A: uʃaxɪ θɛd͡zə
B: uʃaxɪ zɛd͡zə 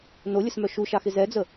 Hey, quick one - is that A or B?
B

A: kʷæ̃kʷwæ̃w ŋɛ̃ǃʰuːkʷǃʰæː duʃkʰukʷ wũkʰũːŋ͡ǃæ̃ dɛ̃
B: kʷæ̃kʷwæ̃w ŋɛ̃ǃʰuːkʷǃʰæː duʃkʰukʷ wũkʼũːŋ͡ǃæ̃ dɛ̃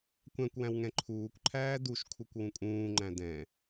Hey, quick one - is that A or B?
B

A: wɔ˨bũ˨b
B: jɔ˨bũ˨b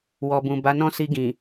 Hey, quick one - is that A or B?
A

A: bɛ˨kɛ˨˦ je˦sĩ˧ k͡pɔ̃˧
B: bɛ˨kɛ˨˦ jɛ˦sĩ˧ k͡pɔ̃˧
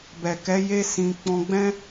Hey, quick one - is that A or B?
A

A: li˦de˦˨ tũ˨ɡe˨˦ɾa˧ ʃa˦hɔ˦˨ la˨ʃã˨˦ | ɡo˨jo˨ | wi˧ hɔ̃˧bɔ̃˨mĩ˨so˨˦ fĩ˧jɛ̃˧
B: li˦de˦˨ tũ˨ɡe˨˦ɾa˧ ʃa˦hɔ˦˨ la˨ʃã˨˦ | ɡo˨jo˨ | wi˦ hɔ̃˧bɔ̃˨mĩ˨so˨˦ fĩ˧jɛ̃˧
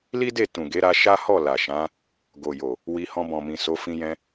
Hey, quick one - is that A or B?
A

